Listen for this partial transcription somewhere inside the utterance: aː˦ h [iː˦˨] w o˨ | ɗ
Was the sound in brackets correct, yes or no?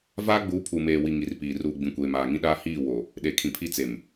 yes